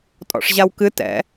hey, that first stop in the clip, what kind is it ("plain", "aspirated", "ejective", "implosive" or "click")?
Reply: ejective